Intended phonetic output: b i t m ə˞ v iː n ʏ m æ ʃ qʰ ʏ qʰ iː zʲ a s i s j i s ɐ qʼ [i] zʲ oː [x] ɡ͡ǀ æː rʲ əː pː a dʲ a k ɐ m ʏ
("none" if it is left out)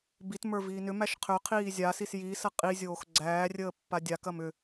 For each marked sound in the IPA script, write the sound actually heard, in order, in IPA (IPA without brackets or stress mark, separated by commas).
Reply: i, x